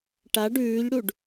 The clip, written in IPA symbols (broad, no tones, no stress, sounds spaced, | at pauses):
ʈ a ɖ ʉː ʎ ɽ u ɖ